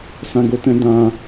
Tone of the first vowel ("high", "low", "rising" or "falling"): low